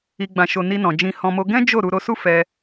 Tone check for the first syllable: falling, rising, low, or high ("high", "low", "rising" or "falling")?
low